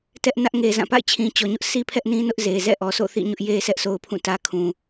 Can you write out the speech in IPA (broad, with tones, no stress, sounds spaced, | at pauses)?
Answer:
t ɛ˦ ʔ n ä˦ ʔ ŋ e˨ z ã˦˨ p a̰˦˨ ɪ̯ t͡ɕʰ ĩ˨ t͡ɕ ɔ˨ ɲ ʊ˦ ʔ s i˦ pʰ ɛ˦ ʔ n ĩ˦ n ʊ˦ ʔ z e˨ z ɛ̰˦˨ ʔ ɔ˨ s o̰˦˨ θ ḭ˦˨ ɲ ʊ˦ ʔ j e˦ sʰ ɛ˦ ʔ sʰ o˦ ʊ̯ pʰ ũ˦˨ t ä˦ kʰ ũ˨